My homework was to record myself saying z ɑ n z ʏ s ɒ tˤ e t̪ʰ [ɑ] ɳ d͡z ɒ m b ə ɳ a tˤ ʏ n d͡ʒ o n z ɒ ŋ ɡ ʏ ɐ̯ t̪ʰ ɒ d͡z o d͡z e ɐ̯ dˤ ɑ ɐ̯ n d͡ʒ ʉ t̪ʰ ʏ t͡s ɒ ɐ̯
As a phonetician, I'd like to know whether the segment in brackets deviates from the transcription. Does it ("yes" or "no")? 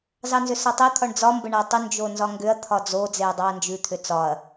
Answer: yes